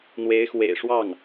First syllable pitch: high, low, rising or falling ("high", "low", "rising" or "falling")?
rising